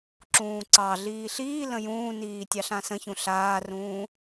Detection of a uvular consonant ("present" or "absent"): absent